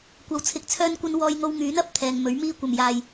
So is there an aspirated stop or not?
yes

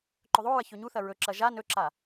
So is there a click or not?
yes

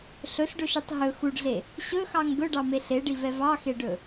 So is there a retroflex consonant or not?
yes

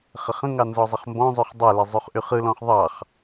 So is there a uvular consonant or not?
yes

